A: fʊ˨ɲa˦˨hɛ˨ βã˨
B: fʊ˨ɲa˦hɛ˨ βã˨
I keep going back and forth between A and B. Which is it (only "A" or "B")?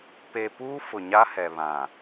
B